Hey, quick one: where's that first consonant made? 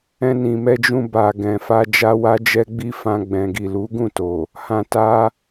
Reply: tongue tip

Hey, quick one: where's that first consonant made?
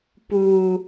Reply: lips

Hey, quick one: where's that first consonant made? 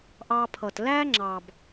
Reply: throat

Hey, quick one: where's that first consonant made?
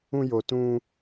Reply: palate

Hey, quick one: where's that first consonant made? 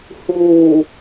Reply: throat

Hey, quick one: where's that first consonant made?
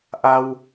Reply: throat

